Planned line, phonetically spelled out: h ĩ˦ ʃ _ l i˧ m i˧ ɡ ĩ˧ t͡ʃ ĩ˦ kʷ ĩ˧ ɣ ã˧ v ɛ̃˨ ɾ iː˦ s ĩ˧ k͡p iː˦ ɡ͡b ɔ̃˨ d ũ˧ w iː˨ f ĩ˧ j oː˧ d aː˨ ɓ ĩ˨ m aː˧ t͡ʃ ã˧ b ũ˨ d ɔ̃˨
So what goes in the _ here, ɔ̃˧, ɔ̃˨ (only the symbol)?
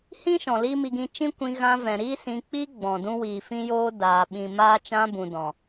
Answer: ɔ̃˨